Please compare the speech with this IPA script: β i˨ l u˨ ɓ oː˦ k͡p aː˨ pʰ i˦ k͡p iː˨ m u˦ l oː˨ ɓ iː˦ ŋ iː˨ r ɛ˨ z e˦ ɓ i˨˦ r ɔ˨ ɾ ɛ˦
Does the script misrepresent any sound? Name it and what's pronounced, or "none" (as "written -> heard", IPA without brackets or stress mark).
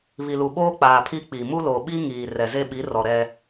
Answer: none